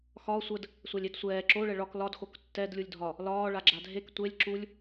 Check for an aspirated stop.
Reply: absent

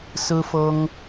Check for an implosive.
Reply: absent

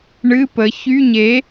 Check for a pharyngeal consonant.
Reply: absent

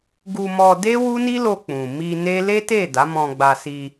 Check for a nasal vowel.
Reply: present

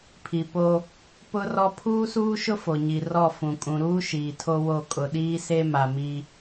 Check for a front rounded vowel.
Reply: absent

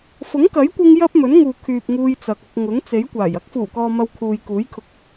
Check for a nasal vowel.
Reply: absent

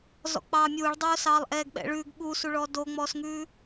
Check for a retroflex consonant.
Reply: present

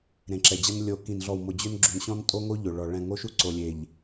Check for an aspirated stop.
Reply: absent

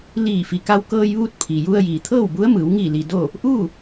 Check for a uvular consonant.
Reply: absent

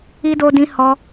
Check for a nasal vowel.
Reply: present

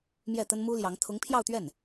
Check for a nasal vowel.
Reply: absent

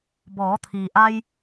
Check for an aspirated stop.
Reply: present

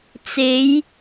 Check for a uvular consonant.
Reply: absent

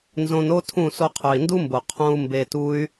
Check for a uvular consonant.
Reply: present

